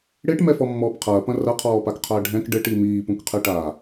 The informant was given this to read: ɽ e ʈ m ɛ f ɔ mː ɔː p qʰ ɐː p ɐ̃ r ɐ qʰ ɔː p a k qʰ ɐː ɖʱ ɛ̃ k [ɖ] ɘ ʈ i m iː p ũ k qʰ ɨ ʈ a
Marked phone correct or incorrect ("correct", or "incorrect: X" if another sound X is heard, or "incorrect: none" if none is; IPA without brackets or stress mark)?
correct